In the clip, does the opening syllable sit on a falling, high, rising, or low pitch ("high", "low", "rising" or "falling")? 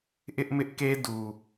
high